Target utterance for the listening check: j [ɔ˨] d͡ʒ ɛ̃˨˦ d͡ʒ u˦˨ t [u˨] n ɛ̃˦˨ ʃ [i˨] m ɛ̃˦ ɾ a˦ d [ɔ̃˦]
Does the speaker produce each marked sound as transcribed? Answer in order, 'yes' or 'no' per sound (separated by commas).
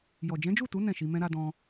yes, no, no, yes